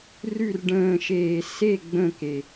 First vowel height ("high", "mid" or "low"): high